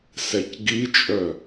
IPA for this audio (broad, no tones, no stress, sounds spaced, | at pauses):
s ɛ c ɡ i t͡ʃʼ œ